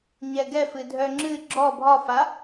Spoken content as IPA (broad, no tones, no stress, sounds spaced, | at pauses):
ɲ ɛ ɡ ɛ f ɨ dʱ œ ŋ͡ǁ ɨ ɡ͡ǁ ɔ bʱ ɒ f a